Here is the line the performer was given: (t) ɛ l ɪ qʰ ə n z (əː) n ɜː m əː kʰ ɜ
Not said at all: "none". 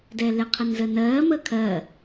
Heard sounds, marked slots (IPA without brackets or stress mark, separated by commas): d, əː